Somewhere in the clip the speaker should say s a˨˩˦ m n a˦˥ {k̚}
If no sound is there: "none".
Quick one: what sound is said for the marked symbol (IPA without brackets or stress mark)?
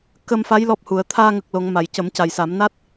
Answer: t̚